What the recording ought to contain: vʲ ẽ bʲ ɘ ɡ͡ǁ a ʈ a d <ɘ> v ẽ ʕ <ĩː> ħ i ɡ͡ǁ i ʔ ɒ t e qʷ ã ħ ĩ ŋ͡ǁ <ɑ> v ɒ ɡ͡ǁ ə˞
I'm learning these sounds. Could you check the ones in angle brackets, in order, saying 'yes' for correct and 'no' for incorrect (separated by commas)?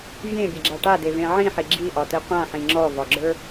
no, no, no